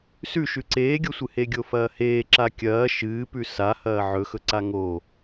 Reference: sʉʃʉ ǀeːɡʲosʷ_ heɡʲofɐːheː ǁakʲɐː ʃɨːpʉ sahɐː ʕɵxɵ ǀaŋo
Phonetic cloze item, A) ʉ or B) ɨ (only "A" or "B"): B